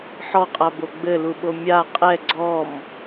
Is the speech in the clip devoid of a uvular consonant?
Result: no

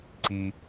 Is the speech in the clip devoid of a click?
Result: no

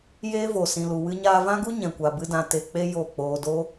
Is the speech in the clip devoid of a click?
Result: yes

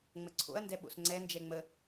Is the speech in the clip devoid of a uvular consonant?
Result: yes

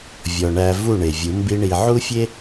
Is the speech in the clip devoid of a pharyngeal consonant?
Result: no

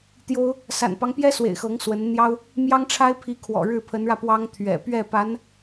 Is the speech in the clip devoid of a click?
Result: yes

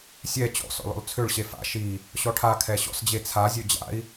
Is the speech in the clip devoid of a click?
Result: yes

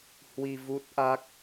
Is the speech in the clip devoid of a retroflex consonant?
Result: yes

